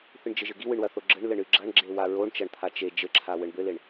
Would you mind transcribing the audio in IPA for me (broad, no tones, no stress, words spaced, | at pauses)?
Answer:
θɨɳd͡ʒɘʒɘɡi wɨɳwɐθoɡ͡ǁɘɳ lɘɳɨɡ͡ǁɐɳ ɡ͡ǁewaɹoɳ t͡ʃɐɳt̪ʰat͡ʃe d͡ʒɘǁʰa wɘɳbɘleɳ